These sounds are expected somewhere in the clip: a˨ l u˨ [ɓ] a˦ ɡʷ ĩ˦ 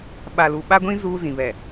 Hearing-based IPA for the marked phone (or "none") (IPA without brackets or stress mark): ɓ